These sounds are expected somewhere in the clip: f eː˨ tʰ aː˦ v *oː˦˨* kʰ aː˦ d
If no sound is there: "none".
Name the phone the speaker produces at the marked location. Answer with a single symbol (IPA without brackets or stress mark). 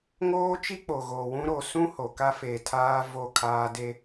o˦˨